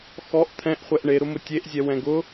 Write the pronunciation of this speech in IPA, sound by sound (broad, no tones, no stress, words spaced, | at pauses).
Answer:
xɔʔ t̪ʰɛ̃ʔχʷɛʔ ɳeɾʊmʊ tʲeʔzʲɛ wɛ̃ɡʊ